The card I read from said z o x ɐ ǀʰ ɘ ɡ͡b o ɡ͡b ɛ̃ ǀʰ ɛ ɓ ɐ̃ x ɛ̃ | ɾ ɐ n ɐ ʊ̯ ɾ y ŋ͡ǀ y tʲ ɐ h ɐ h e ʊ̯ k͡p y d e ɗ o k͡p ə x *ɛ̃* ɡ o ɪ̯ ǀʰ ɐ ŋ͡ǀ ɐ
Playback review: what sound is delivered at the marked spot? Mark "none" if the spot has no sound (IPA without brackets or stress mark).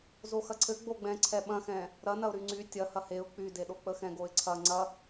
ɛ̃